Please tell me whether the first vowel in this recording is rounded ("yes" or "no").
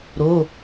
yes